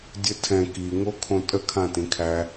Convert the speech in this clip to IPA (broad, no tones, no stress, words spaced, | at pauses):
dʲɘtʰɛ̃ kiŋokʰõ tʼəkʰã tĩkʰæ